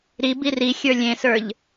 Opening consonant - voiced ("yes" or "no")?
yes